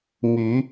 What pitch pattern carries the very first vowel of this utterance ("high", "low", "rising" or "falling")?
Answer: rising